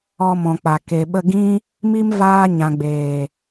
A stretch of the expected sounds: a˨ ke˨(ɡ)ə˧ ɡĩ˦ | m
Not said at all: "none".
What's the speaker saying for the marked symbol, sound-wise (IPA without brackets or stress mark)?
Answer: ɓ